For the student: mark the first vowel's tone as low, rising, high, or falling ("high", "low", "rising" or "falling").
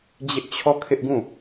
high